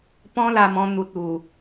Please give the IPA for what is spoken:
p ɔ̃˦ l a˧ m ɔ̃˧ n̪ u˨ t̚ u˨˩

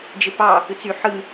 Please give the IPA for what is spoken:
d͡ʒ e p ɑ | ɯ t͡s y ħ ɯ

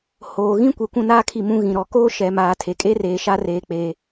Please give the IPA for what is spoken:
h oː˨ ɣ ĩ˦ kʷ e˨ kʷ ũ˦˨ n aː˦ kʰ i˦˨ m ũ˦ ɣ ĩ˨ ɾ ɔ˨ k oː˦ ʃ ɛ˨ m aː˨ tʰ e˨ kʼ e˦ r eː˨ ʃ a˦ r eː˨ k͡p eː˨

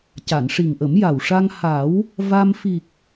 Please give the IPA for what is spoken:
c a˨˩˨ n ʂ i˨˩ ŋ ʔ ə˨˩˦ m j a˨˩ w ʂ a˧ ŋ h a˨˩˦ w | v a˧ m f i˨˩ k̚

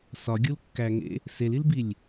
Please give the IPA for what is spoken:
s ɒ ɡʲ u l kː æ ŋ ḛ | s e l i l b i lʲ

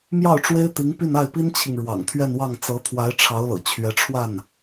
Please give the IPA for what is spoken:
m j ɑ˥˩ ʊ̯ ʈ͡ʂ w e˥ ɪ̯ t̪ i˧˥ ŋ p y˥˧ n a˥˩ ɪ̯ p i˥ n t͡ɕʰ i˨ ŋ ɻ w ɑ̰˨˩ ŋ t̪ʰ ɥ ɛ˥˧ n w ɑ˥˩ ŋ t͡s ɤ˧˥ t̪ʰ w a˧˥ ɪ̯ ʈ͡ʂʰ ɑ˧˥ ʊ̯ l ɤ̰˨˩ t͡ɕʰ ɥ ɛ˧˥ ʈ͡ʂʰ w a˥˩ n

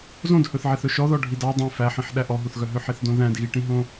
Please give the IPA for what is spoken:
z õ d h ɵ θ ʕ e θ ɵ ʃ ɔ ð ɔ ɖʱ i d ɑ dˤ ẽ f æ ħ ĩ ħ ɗ æ ʔ ɔ ɦ u θ ɣ œ ɦ ø ħ e θ d õ ð æ̃ d ɣ i ʈ ĩ ɦ õ

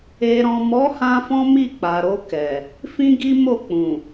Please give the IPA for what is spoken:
e˨ ɾ ɔ̃˨ m ɔ˨˦ h ã˧ f ɔ̃˦ m i˦˨ k͡p a˨ ɾ o˧ k ɛ˨ | f ĩ˦ ɡ i˦ m o˦˨ k͡p ũ˨

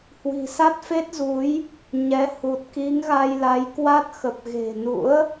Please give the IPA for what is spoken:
h w i̤˨˩ s a˦˥ t̚ f e˦˥ t̚ z u˨˦ j | ɲ ɛ˨˦ h u˨˩ t̚ k i˨˦ ŋ ɣ a˧ j l a˨˦ j k w a˦˥ t̚ x ə˨˩ p̚ ɣ e̤˨˩ n ṵ˧˥ ə̯

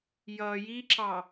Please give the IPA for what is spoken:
j ʌ j i ǁ ɑ

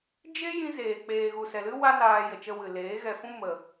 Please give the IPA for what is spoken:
d͡ʒ e˦ j ĩ˧ z eː˨ k͡p eː˨ ɣ u˨ s ɛ˨ l ɨ˦ w a˦ n aː˧ j ə˨ t͡ʃ ə˧ w ɨ˨ l eː˨˦ ɣ ɛ˧ f ũ˦ m ə˧

